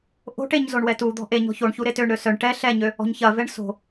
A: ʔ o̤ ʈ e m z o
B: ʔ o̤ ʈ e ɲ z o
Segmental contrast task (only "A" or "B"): B